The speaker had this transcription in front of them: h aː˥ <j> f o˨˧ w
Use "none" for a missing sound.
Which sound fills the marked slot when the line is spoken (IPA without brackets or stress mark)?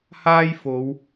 j